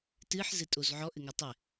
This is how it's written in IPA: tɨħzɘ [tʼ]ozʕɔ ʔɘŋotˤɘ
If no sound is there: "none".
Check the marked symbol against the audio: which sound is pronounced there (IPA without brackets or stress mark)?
tʼ